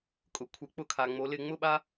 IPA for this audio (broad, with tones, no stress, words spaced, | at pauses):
kʼʊ˩ kʷʰɪ˩˧ k͡pʊ˧˩˧kʰa˩ŋ͡mo˩˧lɪ˧˩˧ ŋ͡mʊ˦˨ɓa˦